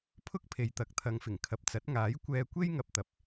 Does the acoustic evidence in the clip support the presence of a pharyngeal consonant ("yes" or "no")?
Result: no